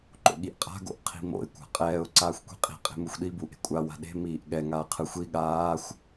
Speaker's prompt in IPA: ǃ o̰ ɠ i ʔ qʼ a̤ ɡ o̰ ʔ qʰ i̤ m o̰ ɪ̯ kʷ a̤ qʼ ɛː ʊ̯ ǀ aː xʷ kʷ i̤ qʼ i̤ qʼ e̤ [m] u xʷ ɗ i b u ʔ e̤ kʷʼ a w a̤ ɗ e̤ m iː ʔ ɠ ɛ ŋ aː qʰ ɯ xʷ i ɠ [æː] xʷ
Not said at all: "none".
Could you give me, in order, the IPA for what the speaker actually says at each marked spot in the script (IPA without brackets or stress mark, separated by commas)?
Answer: m, aː